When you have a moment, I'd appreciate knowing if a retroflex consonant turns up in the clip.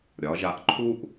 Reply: no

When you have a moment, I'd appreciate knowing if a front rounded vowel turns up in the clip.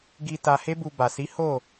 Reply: no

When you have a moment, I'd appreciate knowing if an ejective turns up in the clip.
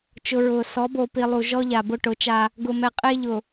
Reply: yes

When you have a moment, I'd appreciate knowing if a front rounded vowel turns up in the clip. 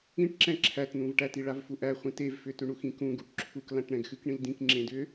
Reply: yes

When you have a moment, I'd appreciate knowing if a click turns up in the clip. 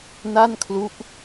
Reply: no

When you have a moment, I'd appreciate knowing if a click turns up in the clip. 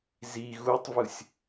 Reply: no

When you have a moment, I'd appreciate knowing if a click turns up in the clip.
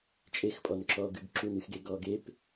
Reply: yes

